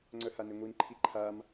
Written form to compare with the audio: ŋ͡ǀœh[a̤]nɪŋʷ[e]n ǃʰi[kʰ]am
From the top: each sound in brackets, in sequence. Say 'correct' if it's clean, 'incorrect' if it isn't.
incorrect: a, incorrect: i, incorrect: ǃʰ

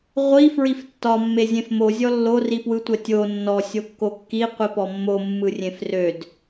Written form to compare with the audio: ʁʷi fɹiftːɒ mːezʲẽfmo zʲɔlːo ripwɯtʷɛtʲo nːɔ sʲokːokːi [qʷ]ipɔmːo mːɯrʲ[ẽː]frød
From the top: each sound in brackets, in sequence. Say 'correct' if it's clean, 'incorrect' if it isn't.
correct, incorrect: ẽ

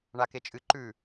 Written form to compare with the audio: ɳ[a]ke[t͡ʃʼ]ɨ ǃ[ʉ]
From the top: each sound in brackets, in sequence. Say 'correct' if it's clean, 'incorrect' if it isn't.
correct, correct, correct

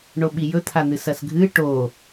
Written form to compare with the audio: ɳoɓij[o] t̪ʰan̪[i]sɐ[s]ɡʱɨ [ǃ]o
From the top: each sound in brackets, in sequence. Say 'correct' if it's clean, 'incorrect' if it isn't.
incorrect: ɵ, incorrect: ɨ, correct, incorrect: ʈ

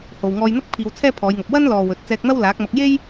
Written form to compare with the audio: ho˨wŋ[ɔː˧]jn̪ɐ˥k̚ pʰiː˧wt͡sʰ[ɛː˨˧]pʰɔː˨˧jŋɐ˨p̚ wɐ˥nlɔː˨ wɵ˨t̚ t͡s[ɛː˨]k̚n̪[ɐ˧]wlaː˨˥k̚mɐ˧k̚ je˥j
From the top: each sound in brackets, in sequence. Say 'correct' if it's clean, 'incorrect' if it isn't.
correct, incorrect: ɛː˥, incorrect: ɛː˧, incorrect: ɐ˥

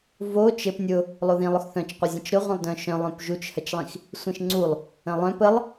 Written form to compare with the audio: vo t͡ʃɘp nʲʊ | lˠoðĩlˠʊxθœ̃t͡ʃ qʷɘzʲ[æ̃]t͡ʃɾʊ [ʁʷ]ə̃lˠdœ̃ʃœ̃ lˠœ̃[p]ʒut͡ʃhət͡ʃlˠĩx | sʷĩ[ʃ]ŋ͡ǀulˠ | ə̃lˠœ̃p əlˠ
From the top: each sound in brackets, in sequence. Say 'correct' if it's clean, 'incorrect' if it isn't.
incorrect: ə̃, correct, correct, correct

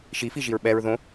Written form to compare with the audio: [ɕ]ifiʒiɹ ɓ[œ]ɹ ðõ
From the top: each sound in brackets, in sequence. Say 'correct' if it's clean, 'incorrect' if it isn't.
incorrect: ʃ, incorrect: ɛ

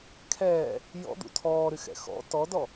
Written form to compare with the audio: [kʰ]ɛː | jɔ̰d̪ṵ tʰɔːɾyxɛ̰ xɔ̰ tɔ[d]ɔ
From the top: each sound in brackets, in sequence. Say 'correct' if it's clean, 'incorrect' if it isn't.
correct, correct

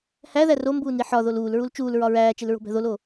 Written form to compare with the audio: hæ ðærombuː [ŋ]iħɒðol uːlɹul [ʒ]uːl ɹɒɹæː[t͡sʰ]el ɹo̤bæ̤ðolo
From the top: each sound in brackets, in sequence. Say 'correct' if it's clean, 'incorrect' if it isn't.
incorrect: n, incorrect: t͡ʃ, incorrect: t͡ʃ

